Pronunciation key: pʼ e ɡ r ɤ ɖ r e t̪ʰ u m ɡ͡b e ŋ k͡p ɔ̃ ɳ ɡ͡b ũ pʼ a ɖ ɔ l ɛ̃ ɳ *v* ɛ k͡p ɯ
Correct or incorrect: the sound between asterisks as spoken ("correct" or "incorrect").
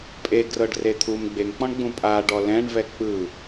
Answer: correct